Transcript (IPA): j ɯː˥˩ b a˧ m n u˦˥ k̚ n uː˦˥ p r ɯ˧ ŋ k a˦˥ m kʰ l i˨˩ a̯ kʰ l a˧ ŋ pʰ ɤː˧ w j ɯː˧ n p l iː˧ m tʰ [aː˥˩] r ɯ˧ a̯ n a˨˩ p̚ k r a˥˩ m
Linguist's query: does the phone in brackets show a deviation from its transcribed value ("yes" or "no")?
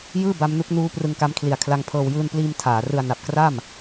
yes